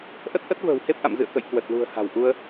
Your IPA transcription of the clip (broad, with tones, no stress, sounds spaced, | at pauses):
ʔ ə˦˥ t̚ ʔ ə˦˥ t̚ v ə̤ː˨˩ w h e˦˥ p̚ ʔ a̰˧˨ m z ɨ̰˧˨ ə̯ k ə̰˧˨ j k w ə˨˩ t̚ l ṳ˨˩ ə̯ h a̤˨˩ w ʔ u˧ ə̯